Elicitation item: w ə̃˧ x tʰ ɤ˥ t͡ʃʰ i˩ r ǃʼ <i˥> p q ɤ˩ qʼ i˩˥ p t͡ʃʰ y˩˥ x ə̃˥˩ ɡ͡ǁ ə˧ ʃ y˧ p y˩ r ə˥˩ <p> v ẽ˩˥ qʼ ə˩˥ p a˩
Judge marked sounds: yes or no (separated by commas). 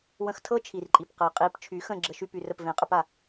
no, yes